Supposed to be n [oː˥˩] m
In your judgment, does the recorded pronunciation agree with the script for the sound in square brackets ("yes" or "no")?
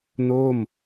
yes